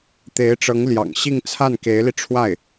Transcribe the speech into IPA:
t̪ e˧˥ ɪ̯ ʈ͡ʂ ɤ˧˥ ŋ l j ɑ̰˨˩ ŋ ɕ i˥˧ ŋ t͡sʰ a˥˩ n k e˧˥ ɪ̯ l i˧ ʈ͡ʂʰ w a˥˩ ɪ̯

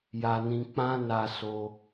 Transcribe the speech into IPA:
j a˧ n ĩ˧ k͡p ã˦ n a˦ s o˦

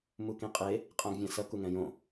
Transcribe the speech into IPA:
m u k ĩ qʼ e | qʼ ã ɡ vʲ ã s ʌ k u ŋ ɛ̃ j õ

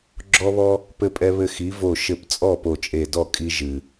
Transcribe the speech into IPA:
ɡ͡ǁ ɔ˦ β ɔ˦ | p ɘ˦ pʼ ɛ˦ β ɘ˦ x i˨˥ v o˧˩ ʃ ɘ˧˩ p t͡sʼ ɔ˥˩ p o˧˩ t͡ʃʼ e˧˩ d ɔ˥˩ kʼ i˦ ʒ ɨ˩

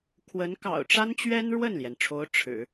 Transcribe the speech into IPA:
kʰ w ə˧˥ n k ɑ̰˨˩ ʊ̯ ʈ͡ʂ a˥ n t͡ɕ ɥ ɛ˥ n ɻ w ə˥˩ n l j ɛ˩ n ʈ͡ʂʰ o˧˥ ʊ̯ ʈ͡ʂʰ ɻ̩˨˩˦

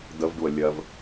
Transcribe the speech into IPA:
d ə v ɖ u ə̯ lʲ ɜ v

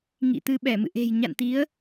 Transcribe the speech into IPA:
ŋ ḭ˧˨ t̪ ɨ˧ ɓ ɛ˧˩ m ɨ̰˧˨ ʔ e̤˨˩ j ɲ a̰˧˨ n t̪ i˨˦ ə̯

